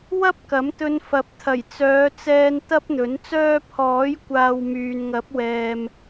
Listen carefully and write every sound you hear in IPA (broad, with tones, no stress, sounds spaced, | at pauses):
w ɐ˥ p̚ k ɐ˨˥ m t̪ ɵ˧ n f ɐ˨˥ p̚ t̪ʰ ɐ˨˩ j t͡s œː˨˧ t͡s ɛː˧ n t̪ ɐ˥ p̚ n̪ ɵ˨˥ n t͡s œː˥ pʰ ɔː˨˥ j kʷ aː˨ w m yː˨ n ŋ ɐ˨˥ p̚ w ɛː˨ m